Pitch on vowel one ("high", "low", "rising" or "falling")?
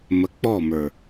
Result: low